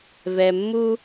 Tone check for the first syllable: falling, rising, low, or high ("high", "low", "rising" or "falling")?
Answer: low